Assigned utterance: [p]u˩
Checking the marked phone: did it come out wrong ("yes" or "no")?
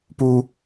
no